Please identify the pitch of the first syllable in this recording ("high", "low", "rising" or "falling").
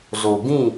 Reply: low